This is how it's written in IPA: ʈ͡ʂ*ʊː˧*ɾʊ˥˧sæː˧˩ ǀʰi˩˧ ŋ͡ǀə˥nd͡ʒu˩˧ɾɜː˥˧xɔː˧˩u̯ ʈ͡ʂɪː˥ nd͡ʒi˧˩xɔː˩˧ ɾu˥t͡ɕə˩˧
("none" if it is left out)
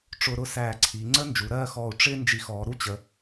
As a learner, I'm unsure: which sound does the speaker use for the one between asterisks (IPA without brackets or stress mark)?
ʊː˧